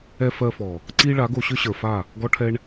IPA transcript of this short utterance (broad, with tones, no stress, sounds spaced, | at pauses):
ɛ˧ f ɜ˧ f ɔ˨ | ǀ i˦ ɭ a˨˦ ɡ o˧ ɕ ʏ˦ ɕ ə˞˨ f a˦˨ | ɡ ɔ˦ ʈʰ ɛ˦ ɳ